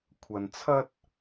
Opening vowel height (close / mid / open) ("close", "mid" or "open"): open